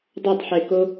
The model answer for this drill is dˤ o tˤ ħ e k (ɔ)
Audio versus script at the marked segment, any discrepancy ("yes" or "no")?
yes